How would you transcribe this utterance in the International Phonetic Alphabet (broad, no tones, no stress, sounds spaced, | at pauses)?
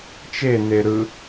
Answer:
t͡ʃ e n e ɾ ɯ